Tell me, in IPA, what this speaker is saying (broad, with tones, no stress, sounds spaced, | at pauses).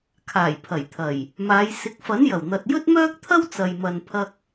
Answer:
kʰ aː˨˩ j pʰ ɐ˨˩ j t̪ʰ ɐ˨˩ j | m aː˨˧ j s ɪ˨˥ k̚ f ɐ˨˥ n j ɐ˨˩ w n̪ ɐ˨ t̚ j ɵ˥ t̚ m œː˥ k̚ t̪ʰ ɐ˥ w t͡s ɐ˨ j m ɐ˨ n pʰ ɐ˧ k̚